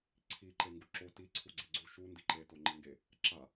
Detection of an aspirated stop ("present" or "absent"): present